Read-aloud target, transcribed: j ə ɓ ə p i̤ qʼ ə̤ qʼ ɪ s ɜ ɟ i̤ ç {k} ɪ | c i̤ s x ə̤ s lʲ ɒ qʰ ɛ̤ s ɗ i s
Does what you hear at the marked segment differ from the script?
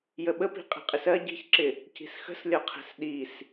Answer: yes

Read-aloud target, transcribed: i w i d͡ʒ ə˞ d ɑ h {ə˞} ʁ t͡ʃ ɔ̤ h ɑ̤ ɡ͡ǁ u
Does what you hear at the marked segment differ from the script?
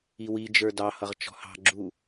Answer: yes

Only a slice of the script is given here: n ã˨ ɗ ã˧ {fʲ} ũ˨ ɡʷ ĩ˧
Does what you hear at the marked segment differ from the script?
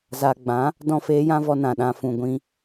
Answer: yes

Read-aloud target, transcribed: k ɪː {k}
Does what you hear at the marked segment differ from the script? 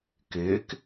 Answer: no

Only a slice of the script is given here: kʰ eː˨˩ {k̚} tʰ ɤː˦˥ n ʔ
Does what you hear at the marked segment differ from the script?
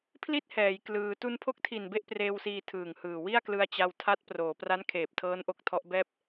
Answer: yes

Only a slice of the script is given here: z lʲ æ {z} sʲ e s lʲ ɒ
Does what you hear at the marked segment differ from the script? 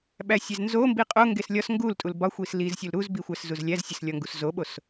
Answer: no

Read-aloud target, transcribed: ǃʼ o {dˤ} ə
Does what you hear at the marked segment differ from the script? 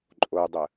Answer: no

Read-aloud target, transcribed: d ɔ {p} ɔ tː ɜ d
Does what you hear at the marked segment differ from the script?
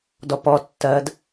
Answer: no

